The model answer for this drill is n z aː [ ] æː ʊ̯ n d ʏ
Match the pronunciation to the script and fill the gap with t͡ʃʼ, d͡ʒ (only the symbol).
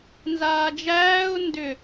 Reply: d͡ʒ